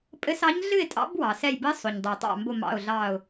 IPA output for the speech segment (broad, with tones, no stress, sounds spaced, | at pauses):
pʼ ɘ˧˥ s ɑ˧˥ ɲ ɮ ɨ˥˨ ɪ̯ tʼ ɑ̰˧˥ b w ɑ˩ s ɛ˧˩ j b ɘ˧˥ sˤ o˩ ɲ dˤ ə˩ ʊ̯ tˤ ɑ̰˧˩ m b o˧˩ m ɑ̰˧˩ ʊ̯ ɮ ɑ˧˩ ʊ̯